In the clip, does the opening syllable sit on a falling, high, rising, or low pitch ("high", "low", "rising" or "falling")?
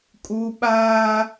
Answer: high